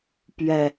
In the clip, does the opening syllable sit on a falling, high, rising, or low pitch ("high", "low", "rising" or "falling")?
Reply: low